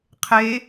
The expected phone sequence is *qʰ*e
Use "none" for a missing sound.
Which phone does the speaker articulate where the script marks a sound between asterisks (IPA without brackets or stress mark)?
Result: qʰ